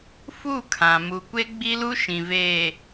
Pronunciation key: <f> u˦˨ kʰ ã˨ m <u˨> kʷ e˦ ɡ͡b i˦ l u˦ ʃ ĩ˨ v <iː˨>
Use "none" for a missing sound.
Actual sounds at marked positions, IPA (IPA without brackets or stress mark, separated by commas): f, u˨, eː˨